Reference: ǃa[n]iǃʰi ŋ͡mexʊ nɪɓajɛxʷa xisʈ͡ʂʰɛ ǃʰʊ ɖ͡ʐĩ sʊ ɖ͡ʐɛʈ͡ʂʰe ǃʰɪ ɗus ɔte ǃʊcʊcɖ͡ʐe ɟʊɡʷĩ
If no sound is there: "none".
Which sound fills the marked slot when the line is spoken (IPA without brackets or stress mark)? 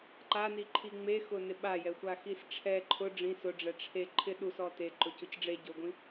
n